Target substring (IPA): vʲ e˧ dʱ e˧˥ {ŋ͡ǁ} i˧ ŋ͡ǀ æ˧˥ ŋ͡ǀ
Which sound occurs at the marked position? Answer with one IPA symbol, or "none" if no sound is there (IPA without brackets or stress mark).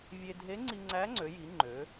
ŋ͡ǀ